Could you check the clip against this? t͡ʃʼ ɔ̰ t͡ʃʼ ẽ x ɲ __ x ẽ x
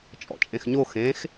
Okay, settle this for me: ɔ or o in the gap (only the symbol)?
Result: o